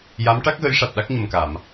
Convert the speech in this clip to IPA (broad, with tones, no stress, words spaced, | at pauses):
ja˧˥mʈa˦˥k̚ɣə˧˥j ʂa˨˩t̚ɗa˦˥k̚ɲə˨˩mka˨˩˨m